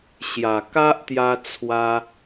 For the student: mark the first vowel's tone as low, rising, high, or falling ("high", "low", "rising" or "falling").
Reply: low